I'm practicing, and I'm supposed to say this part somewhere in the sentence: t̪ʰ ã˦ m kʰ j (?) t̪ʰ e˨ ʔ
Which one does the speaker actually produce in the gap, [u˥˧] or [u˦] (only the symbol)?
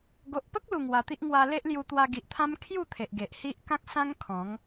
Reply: u˥˧